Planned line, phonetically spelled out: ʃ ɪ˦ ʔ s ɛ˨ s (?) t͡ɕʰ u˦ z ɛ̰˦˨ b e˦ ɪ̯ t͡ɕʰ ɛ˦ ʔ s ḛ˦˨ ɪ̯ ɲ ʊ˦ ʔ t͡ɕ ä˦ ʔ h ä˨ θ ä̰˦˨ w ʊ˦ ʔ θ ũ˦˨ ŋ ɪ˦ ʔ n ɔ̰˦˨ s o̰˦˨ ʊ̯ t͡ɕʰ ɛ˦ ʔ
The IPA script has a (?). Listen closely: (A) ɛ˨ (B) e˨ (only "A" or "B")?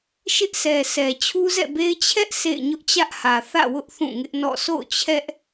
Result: A